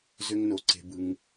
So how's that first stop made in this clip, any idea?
click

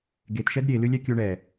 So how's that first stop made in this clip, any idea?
plain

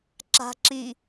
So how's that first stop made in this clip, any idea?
click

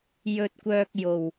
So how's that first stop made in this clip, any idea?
plain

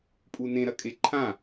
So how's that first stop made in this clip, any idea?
ejective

